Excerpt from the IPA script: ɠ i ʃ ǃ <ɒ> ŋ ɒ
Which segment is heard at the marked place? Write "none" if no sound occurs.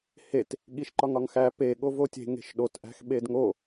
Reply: ɒ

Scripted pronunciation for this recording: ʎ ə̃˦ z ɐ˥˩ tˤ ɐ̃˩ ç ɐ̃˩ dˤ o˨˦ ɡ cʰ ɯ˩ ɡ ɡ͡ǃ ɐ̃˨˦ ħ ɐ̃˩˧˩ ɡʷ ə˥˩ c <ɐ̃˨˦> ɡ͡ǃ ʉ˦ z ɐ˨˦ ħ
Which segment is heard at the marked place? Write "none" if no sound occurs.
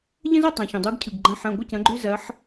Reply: ɐ̃˨˦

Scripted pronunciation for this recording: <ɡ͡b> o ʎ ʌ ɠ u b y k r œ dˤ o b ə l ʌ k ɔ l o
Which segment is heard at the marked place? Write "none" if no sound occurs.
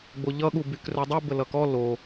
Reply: ɡ͡b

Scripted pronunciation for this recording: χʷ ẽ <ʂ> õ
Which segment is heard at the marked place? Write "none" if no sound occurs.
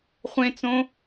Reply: t͡s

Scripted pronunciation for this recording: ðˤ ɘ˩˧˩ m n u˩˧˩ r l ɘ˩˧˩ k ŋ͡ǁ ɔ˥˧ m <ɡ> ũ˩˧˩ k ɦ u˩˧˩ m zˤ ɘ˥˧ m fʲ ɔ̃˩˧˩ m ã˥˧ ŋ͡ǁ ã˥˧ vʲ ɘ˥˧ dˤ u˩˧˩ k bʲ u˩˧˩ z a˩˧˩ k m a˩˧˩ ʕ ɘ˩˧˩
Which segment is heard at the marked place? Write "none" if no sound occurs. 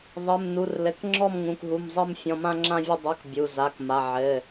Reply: ŋ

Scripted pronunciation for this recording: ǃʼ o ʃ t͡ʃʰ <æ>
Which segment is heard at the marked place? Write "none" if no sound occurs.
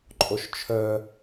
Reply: œ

